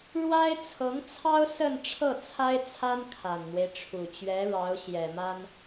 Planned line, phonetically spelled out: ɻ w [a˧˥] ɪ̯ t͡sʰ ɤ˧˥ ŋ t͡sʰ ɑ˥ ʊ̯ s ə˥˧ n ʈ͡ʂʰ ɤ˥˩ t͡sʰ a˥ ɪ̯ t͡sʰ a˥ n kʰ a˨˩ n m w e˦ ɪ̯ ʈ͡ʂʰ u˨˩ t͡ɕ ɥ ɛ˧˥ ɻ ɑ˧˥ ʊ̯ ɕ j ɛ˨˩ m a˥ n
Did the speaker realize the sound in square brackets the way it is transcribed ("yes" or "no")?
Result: no